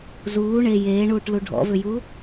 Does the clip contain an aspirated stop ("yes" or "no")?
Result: no